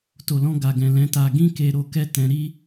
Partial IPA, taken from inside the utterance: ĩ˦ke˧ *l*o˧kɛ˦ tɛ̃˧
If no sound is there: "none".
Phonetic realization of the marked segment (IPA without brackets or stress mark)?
ɾ